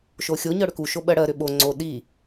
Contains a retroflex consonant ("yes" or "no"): yes